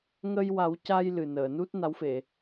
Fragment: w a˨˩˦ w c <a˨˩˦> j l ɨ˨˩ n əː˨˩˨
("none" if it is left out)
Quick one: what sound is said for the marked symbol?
a˧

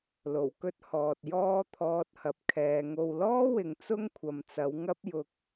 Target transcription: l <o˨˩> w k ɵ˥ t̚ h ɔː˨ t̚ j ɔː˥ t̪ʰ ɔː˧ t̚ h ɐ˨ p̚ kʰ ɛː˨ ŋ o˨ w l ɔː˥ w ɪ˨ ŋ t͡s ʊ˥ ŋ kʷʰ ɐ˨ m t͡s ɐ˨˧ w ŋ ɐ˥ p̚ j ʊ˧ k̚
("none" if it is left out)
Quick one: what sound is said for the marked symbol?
o˨˩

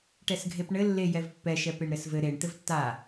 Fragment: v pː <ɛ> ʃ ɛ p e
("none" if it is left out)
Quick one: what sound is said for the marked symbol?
ɛ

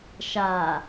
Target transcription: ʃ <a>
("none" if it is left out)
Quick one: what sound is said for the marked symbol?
a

